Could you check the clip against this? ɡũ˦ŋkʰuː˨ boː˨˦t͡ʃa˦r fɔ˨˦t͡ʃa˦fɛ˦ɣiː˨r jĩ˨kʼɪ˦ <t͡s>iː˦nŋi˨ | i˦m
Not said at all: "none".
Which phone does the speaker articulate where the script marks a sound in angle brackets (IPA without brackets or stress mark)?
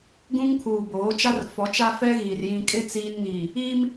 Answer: t͡s